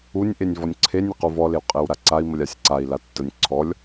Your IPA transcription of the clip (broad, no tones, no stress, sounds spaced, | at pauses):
u nʲ ʔ e nʲ v ɔ nʲ ǀʰ e nʲ ɪ q u v ɔ l e w qʼ e w ɾ a ǀ a i̯ m ə lʲ a sʲ ǀ a i̯ l a tː ə nʲ ǀʰ ɔ lʲ